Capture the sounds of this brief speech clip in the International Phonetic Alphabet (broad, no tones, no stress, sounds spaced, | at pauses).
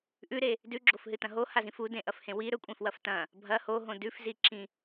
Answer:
ʔ ʉ ɾ e | d ʉ ɡ͡ǁ o f ɦ ɨ t ɐ̃ ɦ o h a z ĩ f u d ẽ ʔ ɐ f h ẽ w i ɾ ɵ kʷʼ ẽ f w ɐ f t ɐ̃ | bʱ ɐ h o ɦ õ d ʉ f z i ǁ ĩ